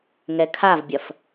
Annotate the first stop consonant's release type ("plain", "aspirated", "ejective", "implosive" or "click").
aspirated